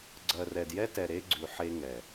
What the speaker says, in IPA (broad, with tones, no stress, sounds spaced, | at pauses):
ɡ͡ǀ ɜ˨ r ɛ˨ d j ɛ˦ t ɛ˨ ɾ e˦ ɡ͡ǀ ʉ˨ ħ e˦ ŋ ɛ˨